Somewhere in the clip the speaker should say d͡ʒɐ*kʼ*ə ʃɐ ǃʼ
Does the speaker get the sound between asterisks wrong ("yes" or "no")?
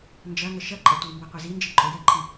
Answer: yes